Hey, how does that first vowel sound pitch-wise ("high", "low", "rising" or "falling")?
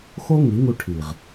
high